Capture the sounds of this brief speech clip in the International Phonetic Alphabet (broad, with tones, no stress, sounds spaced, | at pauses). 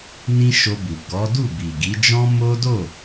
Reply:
n ĩ˦ ʃ o˧ b u˨ ɡ ɔ˨˦ d u˦˨ b i˨ ɡ i˨˦ d͡ʒ ɔ̃˦ m o˦ d o˦˨